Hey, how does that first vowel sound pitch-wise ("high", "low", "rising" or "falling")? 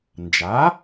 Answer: rising